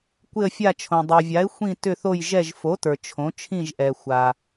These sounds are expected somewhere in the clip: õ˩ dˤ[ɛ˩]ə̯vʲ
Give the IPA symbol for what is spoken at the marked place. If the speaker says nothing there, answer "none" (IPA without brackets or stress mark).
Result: ʏ˩